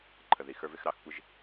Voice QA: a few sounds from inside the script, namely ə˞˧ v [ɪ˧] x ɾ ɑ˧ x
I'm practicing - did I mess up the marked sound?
no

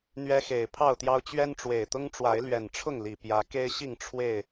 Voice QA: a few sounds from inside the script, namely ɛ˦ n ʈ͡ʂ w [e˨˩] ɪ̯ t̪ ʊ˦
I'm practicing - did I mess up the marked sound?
no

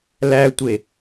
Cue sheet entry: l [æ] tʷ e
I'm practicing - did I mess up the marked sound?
no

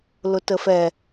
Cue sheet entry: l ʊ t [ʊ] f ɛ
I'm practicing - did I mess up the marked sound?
yes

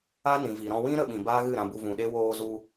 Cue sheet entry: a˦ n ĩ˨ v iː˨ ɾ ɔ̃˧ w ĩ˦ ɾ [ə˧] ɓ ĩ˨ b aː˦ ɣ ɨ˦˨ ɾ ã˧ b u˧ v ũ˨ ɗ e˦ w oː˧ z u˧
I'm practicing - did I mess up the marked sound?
no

